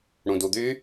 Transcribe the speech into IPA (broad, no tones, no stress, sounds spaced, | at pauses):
ɽ ũ d u d̪ y